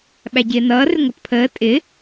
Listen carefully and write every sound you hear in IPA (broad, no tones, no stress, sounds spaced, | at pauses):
ɓ æ ɟ ɪː n ʌː r ɪ ŋʷ ʌ t pʰ əː tʼ ɪ